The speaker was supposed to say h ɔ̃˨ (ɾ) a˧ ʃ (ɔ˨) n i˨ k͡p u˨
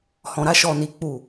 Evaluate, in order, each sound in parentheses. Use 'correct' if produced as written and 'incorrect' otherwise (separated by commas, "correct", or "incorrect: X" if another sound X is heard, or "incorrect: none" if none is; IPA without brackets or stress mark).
correct, correct